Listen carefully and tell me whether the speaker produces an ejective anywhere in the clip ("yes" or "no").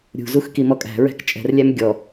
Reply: yes